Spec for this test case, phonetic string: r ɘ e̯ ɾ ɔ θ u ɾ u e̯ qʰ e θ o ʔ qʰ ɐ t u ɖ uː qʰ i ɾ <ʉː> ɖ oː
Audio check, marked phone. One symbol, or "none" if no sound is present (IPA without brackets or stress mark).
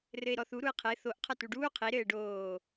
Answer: ɘː